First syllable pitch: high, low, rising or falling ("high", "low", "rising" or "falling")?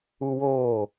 high